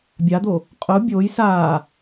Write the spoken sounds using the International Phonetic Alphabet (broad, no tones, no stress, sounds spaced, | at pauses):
bʲ a d̪ o | qʼ ʊ bʲ o j s a